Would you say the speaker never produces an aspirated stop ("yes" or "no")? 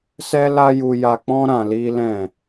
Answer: yes